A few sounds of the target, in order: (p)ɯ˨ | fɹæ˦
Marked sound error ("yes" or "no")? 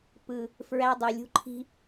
no